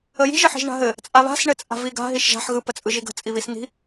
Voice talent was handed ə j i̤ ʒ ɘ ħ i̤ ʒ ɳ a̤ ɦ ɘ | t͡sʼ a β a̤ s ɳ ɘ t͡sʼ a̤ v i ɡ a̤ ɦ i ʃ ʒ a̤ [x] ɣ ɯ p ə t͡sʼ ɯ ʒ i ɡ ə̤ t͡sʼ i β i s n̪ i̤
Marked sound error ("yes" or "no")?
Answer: yes